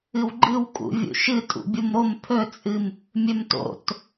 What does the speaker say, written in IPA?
ɨwɡ͡ǃɨw kʼṵvʲṵʃɨ tʼṵbʲumɾom pʰɵt͡sʼɨm | mʲɵmto̰t

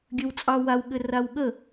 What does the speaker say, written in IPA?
ɡʲɘwt͡sʼɑ wawɠɘ rawɠə

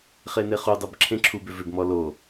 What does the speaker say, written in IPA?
χeneχudˤɜb ǁʰẽǁʰubʏ vʏbmɔ lo

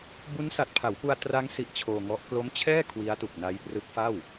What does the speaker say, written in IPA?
bu˦˥nsa˨˩t̚pʰa˩˦wpu˧a̯ tra˦˥ŋ si˦˥ʔt͡ɕʰoː˧ŋɔ˦˥ʔ klo˦˥mt͡ɕʰɛː˥˩ kʰwi˦˥a̯tu˨˩k̚na˦˥j prɯ˦˥k̚fa˥˩w

